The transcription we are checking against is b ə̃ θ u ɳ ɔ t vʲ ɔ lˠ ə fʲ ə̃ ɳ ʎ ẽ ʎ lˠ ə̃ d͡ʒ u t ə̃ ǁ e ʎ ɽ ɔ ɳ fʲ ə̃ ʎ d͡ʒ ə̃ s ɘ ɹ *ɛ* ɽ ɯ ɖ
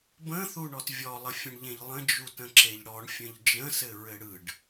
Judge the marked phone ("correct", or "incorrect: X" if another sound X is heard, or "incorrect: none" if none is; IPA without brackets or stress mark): incorrect: ɘ